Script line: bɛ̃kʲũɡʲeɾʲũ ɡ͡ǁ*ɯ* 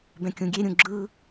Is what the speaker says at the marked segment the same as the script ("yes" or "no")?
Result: yes